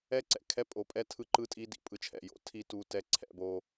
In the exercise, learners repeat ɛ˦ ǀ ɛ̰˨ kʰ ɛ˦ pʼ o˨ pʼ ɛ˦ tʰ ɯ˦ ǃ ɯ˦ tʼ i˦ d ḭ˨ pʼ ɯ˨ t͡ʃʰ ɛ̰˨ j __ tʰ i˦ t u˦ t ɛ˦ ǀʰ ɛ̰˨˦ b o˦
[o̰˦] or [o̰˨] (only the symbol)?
o̰˨